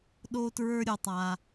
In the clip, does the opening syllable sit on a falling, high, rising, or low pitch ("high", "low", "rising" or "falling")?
low